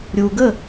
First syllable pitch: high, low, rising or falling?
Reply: low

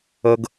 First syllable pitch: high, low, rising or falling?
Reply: high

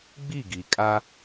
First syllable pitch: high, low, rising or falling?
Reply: falling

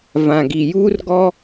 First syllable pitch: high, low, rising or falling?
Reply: low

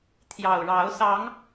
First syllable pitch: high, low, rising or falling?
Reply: low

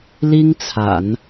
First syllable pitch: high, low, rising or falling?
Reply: high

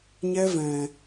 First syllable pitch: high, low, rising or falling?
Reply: high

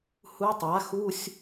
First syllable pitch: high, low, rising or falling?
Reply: rising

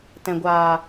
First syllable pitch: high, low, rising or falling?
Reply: low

